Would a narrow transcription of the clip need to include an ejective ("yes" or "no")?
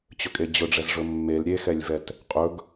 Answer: yes